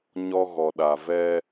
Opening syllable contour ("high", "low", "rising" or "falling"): high